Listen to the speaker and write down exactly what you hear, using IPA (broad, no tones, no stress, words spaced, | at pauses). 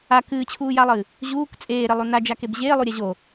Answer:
a kɨːt͡ɕʰuːjalˠɨː | ʑuːk t͡sʼeːɾelˠu nad͡ʒakeb ʑeːlˠuɾʲa ʑo